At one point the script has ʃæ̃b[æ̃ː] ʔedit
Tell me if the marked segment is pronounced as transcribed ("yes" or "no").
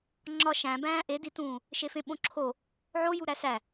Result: yes